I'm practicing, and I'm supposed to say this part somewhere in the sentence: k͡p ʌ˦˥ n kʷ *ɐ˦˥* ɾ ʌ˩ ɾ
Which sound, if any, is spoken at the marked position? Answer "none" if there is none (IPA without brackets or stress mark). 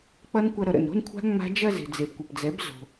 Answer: ɐ˧